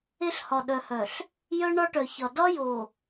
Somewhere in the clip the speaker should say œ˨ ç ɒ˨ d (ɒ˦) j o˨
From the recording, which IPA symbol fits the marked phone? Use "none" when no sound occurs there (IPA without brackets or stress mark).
ɒ˦